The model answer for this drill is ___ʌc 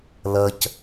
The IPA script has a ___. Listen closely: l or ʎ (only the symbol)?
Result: l